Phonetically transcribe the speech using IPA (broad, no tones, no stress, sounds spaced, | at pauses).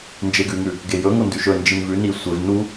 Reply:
n d͡ʒ e ɡ ʉ ŋ ʉ | ɡ e j ɵ ŋ o n d ʉ ʃ ɵ n d͡ʒ i n v ʉ n i sʷ e v n u